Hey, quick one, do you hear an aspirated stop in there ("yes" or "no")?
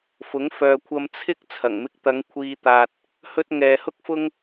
yes